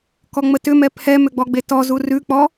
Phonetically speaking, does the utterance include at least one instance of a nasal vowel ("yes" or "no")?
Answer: no